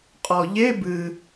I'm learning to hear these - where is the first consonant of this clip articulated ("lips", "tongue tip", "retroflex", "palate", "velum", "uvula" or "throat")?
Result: uvula